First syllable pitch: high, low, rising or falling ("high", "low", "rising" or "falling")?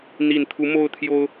low